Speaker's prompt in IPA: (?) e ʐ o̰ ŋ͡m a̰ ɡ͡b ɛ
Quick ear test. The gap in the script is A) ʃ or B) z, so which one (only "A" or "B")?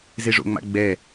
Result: B